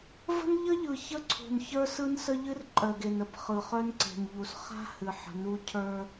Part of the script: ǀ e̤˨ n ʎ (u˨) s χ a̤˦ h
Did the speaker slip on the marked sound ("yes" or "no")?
no